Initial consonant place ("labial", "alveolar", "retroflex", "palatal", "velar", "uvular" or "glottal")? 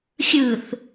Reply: velar